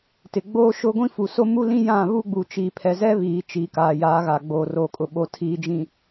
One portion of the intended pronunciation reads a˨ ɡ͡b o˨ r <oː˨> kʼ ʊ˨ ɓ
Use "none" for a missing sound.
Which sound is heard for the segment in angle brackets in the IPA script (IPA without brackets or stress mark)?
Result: oː˨